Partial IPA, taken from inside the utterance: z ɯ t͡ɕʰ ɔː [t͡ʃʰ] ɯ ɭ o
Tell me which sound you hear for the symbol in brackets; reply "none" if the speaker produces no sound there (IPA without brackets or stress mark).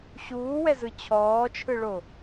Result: t͡ʃʰ